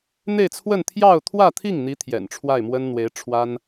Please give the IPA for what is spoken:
n̪e˥˧ɪ̯t͡sʰwə˥˧n t̪ʰjɑ˥˧ʊ̯t̪ʰwä˥˧t̪ʰi˥˩ŋn̪i˧˥ t̪ʰjɛ̰˨˩nʈ͡ʂʰwa˥˩ɪ̯ mwə˥n n̪we˧˥ɪ̯ʈ͡ʂʰwa˥n

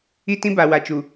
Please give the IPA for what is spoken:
i˦tĩ˦ ba˨ wa˨t͡ʃu˨

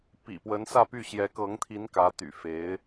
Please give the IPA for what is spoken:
pḭ˨˩pwə˧˥nsä˥˧py˥˩ ɕjɛ˧˥kɤ˧˥ŋt̪ʰi˧˥n kä˧˥t̪y̰˨˩fe˧˥ɪ̯

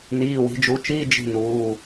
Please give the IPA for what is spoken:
niː˩˧˩wi̤˩˧d͡ʒu˩˧t͡ʃiː˧˥˧ d͡ʒi̤˦˨nuː˩˧˩

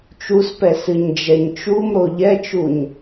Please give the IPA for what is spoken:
t͡ʃuspɛ sɨɲd͡ʒɛɲt͡ʃumɾo ʎɛt͡ʃuɲ

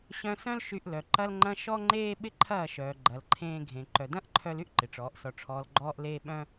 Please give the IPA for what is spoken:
ɕœ̃˧sœ̃˦l ʃy˧ʔlœ˨ ǃɐ˧lŋ͡ǃɐ̃˧ ʃɔ˦ŋ͡ǃeː˦ ɓɪ˦ǃʰɐː˦˨ʃœː˨ ɡ͡ǃɐ˨lǃʰẽː˧ɡʱẽ˨ ǃœ˨dɐ̃˦ʔǃʰœ˧l y˦ʔ ǃɪ˨ʈ͡ʂɔː˨˦ʔsɔ˧ʈ͡ʂʰɔː˧l ɡ͡ǃɔː˦ʔleː˦ ɓœ̃˦

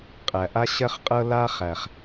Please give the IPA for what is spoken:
qʼæ˨ʔa˦ɕɜ˦χqʼɤ˦ la˦ χæ˨χ

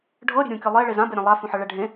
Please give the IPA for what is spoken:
ɖʱɤ ɾʲe̤ɾʲũkʲɤ lˠe ɭezãbe ɾʲɛ̃lˠa fũħɤɭɛɖʱẽ

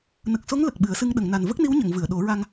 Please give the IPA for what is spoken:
nə˨˩k̚so˧˥ŋ lə˨˩k̚ɓɨ˨˩˦ə̯sɨ˧ŋ ɗə˨˩˨ŋna˨˩n və˦˥k̚ni˧˥wɲə˨˩˨ŋvɨ˨˩˨ə̯ ɗo˨˩˦ɹa˧ŋ

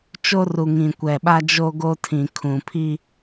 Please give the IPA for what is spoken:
t͡ʃo˦ru˨ ŋĩ˨kʷɛ˨ɓa˦ d͡ʒo˦ɡo˦tʰĩ˨ kʰũ˨pʰi˦

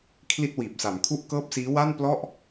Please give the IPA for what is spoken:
kʰli˥˩t̚wiː˨˩p̚sa˩˦m kʰu˥˩ʔkɤː˥˩p̚siː˦˥ wa˥˩nplɔ˥˩ʔ

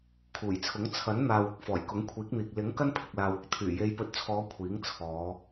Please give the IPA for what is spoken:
kʰuː˨˩jt͡sʰʊ˨˥ŋ t͡sʰɐ˨˥nn̪aː˨wʊ˧k̚ fɔː˨˩jkʊ˨˥ŋkʷʰiː˨˥k̚n̪iː˨k̚ lɪ˨˥ŋ kɐ˥npʰɪ˨k̚laː˨wʊ˨k̚ t̪ʰyː˨˩je˨˧jpɵ˨t̚t͡sʰɔː˨˧ kʷʰiː˨˥ŋt͡sʰɔː˨˧

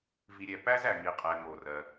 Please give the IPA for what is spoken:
vi˨ɾʲɛ˨ pæ˥zæ˩ ŋi˩qʼɛ˩ ŋo˩rɜ˩

